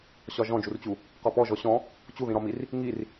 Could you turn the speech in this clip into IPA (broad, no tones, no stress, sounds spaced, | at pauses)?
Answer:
ɕ ɒ ʒ ɔ̃ d͡ʒ u r t͡ɕ u | q ɒ p ɔ ʒ ɔ ɕ ɔ̃ | t͡ɕ u ð ĩ ɾ ɒ m i r | ŋ i r